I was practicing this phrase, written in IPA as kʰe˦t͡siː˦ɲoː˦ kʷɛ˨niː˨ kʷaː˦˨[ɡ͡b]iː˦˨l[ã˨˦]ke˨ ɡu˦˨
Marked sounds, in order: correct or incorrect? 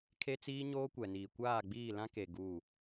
correct, incorrect: ã˦

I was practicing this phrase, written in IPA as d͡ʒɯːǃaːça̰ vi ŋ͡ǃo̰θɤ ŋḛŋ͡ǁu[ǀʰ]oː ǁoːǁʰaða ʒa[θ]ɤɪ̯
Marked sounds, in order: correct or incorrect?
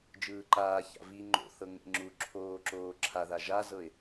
incorrect: ǁʰ, incorrect: z

